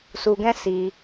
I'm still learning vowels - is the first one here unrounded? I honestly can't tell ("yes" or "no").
no